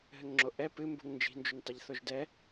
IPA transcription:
ɦ ɘ ŋ ŋ͡ǁ o ʔ ɛ p ɨ m b ṳ ŋ n d͡ʒ i̤ n d͡ʒ u n tˤ ɐ ʎ θ o ʒ d ɛ

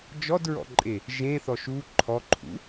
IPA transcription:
d͡ʒ ɔ d ɹ ɔ̰ ǃʼ e | ʒ ẽ θ ɔ ʃ u ǃʰ ɔ ǃʰ ṵ

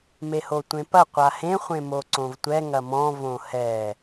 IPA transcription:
m e h o tʷ ẽ p ɐ qʷ a h ẽ χʷ ẽ m o ǀ õ v tʷ ɛ ŋ ɐ m ɔ̃ v õ h ɛ

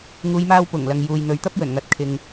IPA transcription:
ŋ uː˨˧ j m aː˧ w p ʊ˨˩ ŋ l ɐ˨ ŋ j uː˨ j n̪ ɵ˨ ɥ t̪ ɐ˥ p̚ j ɵ˨˩ n ŋ ɐ˨˥ t̚ kʰ ɪ˨ ŋ

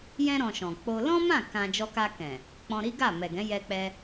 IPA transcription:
j ɛ̃˧ ɾ ɔ̃˨ ʃ ɔ̃˨ k͡p o˧ l ɔ̃˦ m ã˦˨ k ã˧ d͡ʒ ɔ˧ k a˧ k ɛ̃˨ | k͡p ɔ̃˧ ɾ i˦ ɡ a˦˨ m ɛ˨ ɡ ɛ̃˨˦ j ɛ˧ k͡p ɛ˧

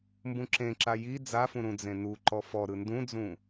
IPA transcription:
m b ũ ǁ ẽ ǁ a j i d͡z a f ũ ɾ ũ d͡z ẽ n u ǃ ɔ f ɔ ɾ ɯ n d ũ d͡z ũ

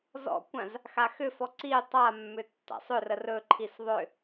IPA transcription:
z ɔ̰ kʷ ã z | x a x ʏ f ɔ ǀ i tˤ a mː ʏ tː a̰ sˤ ʏ r ə r ɵ ǃʰ i s ðˤ ʏ

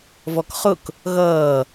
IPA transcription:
v ɔ k χ ʊ k | ɣ ʌː

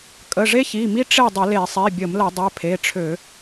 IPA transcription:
kʼ ə˩˧˩ ʐ e˦ ç i˩˧˩ m i˦ ʈ͡ʂ e˥˨ dˤ ə˧˩˧ l e˧˩˧ sˤ i˩˧˩ bʲ ə˧˩˧ m l ə˧˩˧ dˤ ɛ˩˧˩ pʰ e˩˧˩ ʈ͡ʂʰ ø˧˩˧

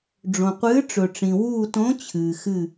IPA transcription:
ɖ͡ʐ õ˩ qʷ ɨː˨˥ ʈ͡ʂ ɵ˩ ʈ͡ʂ ĩ˩ w uː˧˩ t õ˨˥ t͡ɕʰ ɨː˩ x ɨ˧˩

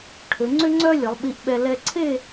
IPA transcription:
ʈʰ ø˩˧ ŋ͡ǀ ʏ˥ ŋ͡ǀ œ˥ lʲ ə˩˧ lˠ ɓ i˧ ʔ ɓ ɛ˧ l ɛ˧ ǀʰ e˥˧

